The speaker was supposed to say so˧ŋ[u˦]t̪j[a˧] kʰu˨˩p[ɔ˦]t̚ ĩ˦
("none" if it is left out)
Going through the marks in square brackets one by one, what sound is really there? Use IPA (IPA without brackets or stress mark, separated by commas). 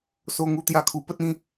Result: u˦, a˧, ə˦